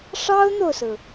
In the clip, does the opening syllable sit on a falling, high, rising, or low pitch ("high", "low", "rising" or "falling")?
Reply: high